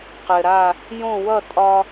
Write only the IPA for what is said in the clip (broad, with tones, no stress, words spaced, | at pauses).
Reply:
qɘ˩ɾa˧˩ | jõ˥˩wʌ˥˩ tʼɒ˧